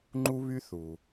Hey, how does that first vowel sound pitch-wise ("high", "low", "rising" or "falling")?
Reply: high